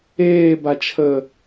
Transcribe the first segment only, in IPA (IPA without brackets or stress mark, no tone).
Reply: eː